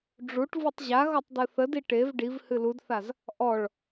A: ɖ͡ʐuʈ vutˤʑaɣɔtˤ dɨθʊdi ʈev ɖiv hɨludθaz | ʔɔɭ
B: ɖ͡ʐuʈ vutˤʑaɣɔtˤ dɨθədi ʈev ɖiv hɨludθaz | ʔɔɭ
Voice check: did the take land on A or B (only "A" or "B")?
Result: B